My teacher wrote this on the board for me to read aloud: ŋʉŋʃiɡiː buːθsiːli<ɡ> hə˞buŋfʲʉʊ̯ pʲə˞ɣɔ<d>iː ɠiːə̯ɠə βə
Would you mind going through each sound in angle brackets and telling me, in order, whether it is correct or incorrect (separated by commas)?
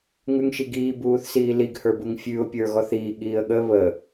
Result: correct, incorrect